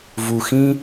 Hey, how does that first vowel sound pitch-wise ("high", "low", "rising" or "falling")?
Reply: low